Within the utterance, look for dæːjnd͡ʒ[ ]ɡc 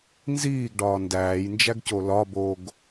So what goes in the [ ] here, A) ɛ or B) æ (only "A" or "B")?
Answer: B